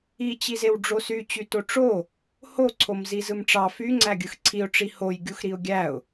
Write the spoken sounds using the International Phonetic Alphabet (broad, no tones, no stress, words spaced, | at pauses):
it͡ɕizew ɖ͡ʐosyt͡ɕy toʈ͡ʂo | hoǀʰom zizɯmʈ͡ʂɑ fyŋ͡ǀæɡʲɯx ǀʰiʊ̯ʈ͡ʂi hoj ɡʲuxɾiʊ̯ɡʲæʊ̯